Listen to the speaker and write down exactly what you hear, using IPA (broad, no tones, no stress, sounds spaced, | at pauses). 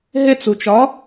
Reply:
ɦ e t͡s u t͡ʃ ɒ